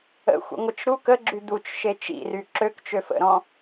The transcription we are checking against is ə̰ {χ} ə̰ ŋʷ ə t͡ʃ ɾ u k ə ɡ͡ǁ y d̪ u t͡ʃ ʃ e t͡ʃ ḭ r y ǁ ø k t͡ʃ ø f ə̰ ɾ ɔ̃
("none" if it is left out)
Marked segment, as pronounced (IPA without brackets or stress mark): xʷ